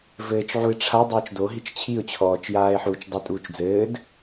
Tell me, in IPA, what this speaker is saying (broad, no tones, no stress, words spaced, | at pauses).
vɘːt͡ʃʕuɪ̯ ʈ͡ʂʰa dˤɘːt͡ʃdoɦit͡ʃ t͡ɕʰiʊ̯t͡ɕʰɔːt͡ʃjaːɪ̯ħuːt͡ʃ dˤetʼuːt͡ʃ d͡zɘːd